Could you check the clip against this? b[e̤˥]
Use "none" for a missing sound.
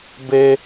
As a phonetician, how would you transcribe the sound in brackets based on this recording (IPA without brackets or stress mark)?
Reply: e˥